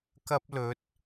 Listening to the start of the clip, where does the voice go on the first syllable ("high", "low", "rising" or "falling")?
high